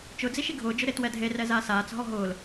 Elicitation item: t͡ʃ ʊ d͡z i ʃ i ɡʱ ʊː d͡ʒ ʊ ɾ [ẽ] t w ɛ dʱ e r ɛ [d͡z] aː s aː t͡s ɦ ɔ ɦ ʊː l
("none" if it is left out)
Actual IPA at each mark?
e, z

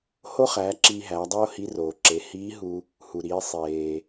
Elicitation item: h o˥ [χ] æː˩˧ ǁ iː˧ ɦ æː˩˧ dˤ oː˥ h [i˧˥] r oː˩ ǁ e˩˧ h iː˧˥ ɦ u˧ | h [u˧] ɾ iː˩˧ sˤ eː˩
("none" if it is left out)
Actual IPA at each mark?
χ, i˧˥, u˩

